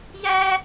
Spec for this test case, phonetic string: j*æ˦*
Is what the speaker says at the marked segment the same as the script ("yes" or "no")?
yes